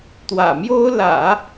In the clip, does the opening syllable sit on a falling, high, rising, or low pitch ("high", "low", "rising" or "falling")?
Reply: low